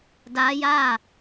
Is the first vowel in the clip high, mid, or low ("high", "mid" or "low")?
low